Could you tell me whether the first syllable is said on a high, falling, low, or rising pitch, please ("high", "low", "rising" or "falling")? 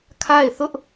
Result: falling